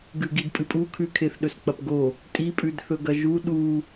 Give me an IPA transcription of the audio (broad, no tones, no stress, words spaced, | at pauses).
ɡʉɡidpʼɨpʼu kʰʉkʰeθɗɵs k͡pɐpɡo | tʼipʼʉd θɵɡɐʒu ɗu